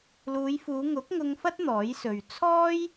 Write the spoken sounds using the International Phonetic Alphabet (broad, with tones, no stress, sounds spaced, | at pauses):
l uː˨˧ j f uː˨˧ ŋ ʊ˨˥ k̚ ŋ ʊ˧ ŋ f ɐ˥ t̚ n̪ ɔː˨˥ j s ɵ˨ ɥ t͡sʰ ɔː˥ j